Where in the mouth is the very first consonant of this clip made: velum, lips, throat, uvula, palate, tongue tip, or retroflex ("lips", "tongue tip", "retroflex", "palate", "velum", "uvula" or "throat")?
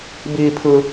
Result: lips